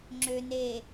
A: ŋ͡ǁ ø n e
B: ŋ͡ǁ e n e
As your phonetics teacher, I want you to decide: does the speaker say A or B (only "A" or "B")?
A